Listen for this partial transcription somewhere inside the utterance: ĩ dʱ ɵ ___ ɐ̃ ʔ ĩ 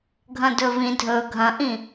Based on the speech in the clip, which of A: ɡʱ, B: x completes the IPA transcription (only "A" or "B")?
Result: A